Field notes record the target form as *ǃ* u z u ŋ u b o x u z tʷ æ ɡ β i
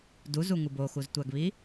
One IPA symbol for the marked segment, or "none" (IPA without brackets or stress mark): d